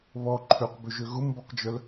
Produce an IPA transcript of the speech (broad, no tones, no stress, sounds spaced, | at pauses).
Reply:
β ɔ ǃʰ ø q b ø ʒ ø ɣ ʊ m b ɔ q d͡ʒ œ l